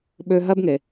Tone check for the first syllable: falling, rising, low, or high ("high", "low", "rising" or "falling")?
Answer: high